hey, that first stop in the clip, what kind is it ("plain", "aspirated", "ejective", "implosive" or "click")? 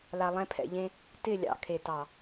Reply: aspirated